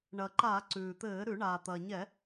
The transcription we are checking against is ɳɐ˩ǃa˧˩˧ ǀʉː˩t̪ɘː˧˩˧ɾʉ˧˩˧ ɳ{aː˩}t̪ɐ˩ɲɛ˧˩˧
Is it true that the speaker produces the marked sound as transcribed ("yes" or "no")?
yes